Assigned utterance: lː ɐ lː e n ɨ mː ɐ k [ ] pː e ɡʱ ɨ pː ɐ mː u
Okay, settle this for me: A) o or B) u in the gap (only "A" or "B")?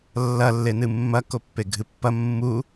A